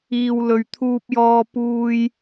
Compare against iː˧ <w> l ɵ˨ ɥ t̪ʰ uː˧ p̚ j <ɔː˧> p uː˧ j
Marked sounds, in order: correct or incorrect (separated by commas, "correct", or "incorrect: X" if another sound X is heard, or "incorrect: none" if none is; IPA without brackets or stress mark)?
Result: correct, correct